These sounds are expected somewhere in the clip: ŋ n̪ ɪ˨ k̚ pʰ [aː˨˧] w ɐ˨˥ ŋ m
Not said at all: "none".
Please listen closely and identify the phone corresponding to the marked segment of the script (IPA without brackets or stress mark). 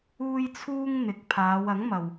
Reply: aː˨˧